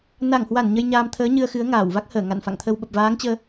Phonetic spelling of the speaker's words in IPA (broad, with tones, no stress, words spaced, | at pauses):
na˧˩ŋhwa˧˩n ɲə˧jɲaː˧m t̪ʰəː˨˦ ɲɨ˧ə̯xɨ˨˦ə̯ŋaː˧˩wva˦˥k̚ həː˧˩ŋa̰˧˨nfa̰˧˨ŋt̪ʰə˧w ɓə˨˩p̚vaː˨˦ŋt͡ɕəː˧